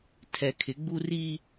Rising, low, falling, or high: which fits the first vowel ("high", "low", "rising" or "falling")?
low